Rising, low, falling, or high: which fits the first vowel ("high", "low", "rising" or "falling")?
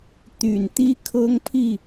low